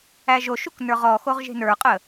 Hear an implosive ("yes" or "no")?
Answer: no